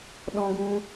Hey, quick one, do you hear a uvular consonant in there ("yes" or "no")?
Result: no